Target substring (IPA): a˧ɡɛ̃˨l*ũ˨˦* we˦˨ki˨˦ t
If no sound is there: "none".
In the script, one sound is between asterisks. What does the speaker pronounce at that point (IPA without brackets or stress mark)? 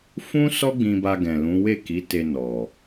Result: ũ˨˦